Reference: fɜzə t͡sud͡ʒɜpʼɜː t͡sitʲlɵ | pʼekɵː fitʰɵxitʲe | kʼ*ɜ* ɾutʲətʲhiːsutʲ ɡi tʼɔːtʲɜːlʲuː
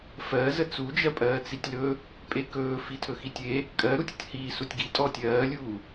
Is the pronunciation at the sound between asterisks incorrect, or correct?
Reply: correct